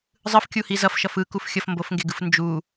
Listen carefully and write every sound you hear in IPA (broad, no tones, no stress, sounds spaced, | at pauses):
zˤ ɯ f kʲ u h i z ʌ f ʃ ʌ f ɯ k u f xʲ ʌ f m b o f ŋ ɡ e ɡ ɯ f n d͡ʒ u